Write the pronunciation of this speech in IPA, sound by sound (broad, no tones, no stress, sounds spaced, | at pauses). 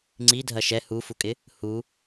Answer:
ŋ͡ǀ i dʱ ɐ ʃ ɛ h u f u kʼ ɪ | h u